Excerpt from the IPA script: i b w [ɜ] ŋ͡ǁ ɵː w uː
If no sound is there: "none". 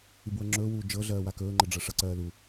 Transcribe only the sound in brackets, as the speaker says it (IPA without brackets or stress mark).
ɜ